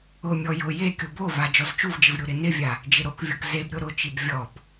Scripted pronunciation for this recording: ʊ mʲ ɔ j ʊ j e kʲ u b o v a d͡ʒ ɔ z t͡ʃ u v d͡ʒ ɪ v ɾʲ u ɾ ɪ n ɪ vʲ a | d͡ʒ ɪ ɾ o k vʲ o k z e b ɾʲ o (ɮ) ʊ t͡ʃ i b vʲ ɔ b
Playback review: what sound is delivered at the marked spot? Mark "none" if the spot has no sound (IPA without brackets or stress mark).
ɾ